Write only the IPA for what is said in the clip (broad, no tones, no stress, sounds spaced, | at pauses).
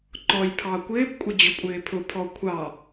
ǃ ɔ j pʰ ɑ kʷ ɪː p kʷʼ ə d͡ʑ ʊ kʷʼ ɪː pʰ ʊ pʰ ɔ kʷʰ ɑ